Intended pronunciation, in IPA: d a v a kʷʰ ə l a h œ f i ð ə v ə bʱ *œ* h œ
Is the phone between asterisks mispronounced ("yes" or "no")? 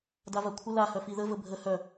yes